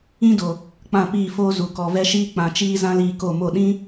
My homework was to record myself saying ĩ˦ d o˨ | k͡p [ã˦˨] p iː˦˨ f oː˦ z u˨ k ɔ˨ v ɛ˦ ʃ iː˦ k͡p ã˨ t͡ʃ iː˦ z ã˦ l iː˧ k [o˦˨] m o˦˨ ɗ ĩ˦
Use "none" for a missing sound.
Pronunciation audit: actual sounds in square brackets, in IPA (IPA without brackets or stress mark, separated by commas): ã˦˨, o˦˨